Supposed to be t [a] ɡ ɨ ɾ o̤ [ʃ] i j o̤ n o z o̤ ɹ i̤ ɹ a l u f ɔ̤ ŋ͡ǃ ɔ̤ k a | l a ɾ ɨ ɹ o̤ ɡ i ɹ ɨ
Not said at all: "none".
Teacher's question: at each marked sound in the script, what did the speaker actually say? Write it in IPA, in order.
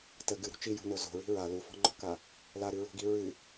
ə, t͡ʃ

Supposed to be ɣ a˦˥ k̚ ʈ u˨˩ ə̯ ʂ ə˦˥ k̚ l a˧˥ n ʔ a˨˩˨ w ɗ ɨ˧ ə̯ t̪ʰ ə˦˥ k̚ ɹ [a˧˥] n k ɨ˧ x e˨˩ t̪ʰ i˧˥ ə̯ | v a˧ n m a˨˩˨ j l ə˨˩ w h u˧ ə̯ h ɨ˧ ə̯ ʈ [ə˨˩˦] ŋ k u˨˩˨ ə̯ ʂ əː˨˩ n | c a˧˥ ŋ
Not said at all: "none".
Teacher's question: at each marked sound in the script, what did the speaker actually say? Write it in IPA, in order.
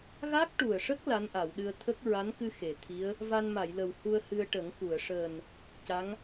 a˧˥, ə˨˩˦

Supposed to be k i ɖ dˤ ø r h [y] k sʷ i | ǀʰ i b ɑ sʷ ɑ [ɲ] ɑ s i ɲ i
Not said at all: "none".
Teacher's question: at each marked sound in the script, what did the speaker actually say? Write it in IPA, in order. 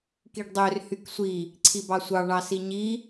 y, ɳ

